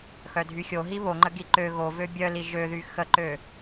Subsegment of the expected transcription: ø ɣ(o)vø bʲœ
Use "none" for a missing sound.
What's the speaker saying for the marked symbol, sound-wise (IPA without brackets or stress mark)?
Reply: o